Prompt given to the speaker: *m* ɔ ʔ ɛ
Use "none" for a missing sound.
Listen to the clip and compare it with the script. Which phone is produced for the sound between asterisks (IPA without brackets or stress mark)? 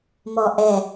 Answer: m